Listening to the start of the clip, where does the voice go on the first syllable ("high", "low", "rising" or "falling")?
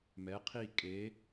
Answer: rising